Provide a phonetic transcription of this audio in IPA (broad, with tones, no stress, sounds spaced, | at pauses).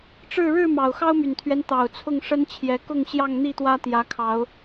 ʈ͡ʂ ɻ̩˥˨ ɻ ɻ̩˥˨ m ɑ˨˩ ʊ̯ x ɑ˦ ʊ̯ m y˨˩ n t̪ʰ ɥ ɛ˦ n t̪ ɑ˨˩ ʊ̯ t͡sʰ ʊ˥˨ ŋ ʂ ə˦ n t͡ɕʰ j ɛ˨˦ k ʊ˥˨ ŋ ɕ j ɑ˥˨ ŋ n̪ i˥˨ t̪ w ä˦ t̪ j ä˨˦ kʰ ɑ˨˦ ʊ̯